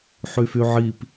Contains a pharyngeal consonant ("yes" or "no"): yes